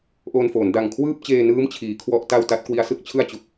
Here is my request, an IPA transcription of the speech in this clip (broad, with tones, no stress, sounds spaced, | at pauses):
ʔ oː˧ n f oː˩˦ n d a˨˩ ŋ kʰ w ɯː˥˩ p̚ t͡ɕ eː˧ n ɯː˦˥ m t͡ɕʰ iː˩˦ kʰ w ɔ˥˩ ʔ t a˥˩ w t a˦˥ t̚ k w i˦˥ a̯ s ɯ˦˥ k̚ t͡ɕʰ ɯ˥˩ a̯ t͡ɕ u˨˩ k̚